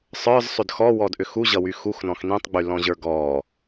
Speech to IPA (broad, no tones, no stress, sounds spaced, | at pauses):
sˤ ə˞ z sˤ ʏ d x ɔ w ɔ d ʔ ʏ x u ʑ ʌ w y x u x n ɔ̃ x n ĩ tˤ ɡ͡b y l ɔ̃ ʑ ə˞ ɡ ɔ